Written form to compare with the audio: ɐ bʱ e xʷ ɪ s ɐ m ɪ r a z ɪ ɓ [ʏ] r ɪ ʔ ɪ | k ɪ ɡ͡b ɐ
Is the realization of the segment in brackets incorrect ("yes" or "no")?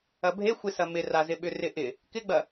no